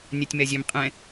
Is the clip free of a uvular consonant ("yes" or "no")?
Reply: no